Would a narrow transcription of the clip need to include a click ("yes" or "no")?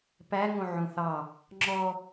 yes